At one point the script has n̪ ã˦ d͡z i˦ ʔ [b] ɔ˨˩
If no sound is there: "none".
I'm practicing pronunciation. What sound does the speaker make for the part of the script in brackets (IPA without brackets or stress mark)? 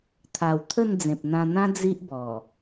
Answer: b